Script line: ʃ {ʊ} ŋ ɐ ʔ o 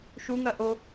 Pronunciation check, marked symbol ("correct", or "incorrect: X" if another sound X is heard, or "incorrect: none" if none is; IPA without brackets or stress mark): incorrect: u